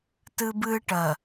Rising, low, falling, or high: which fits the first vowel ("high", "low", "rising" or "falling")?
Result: high